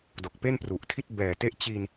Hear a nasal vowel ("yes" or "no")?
no